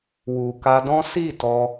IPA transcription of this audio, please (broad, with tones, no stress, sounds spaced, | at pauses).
w u˨ k a˧ d ɔ̃˦ s i˦˨ t ɔ˧